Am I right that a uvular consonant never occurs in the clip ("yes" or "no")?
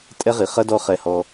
no